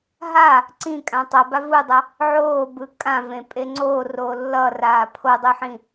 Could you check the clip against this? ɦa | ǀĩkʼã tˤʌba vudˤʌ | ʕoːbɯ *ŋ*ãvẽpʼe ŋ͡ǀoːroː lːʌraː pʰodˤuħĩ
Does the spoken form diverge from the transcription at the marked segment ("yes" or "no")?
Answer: yes